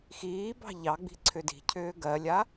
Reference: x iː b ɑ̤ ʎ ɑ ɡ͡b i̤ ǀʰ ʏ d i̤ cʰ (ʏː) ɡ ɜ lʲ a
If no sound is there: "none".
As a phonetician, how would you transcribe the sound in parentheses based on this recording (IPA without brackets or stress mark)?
ʏː